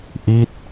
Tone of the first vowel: falling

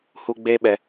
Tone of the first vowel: high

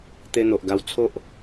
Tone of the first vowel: high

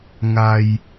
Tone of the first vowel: low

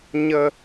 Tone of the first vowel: high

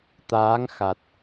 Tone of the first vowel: rising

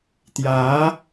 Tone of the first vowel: rising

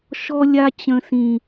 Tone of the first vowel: high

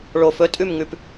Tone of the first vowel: low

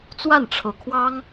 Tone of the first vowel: falling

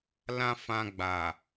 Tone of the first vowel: high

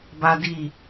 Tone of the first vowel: high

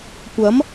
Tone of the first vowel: rising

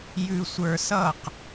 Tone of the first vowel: low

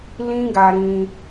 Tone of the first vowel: high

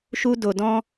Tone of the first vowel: high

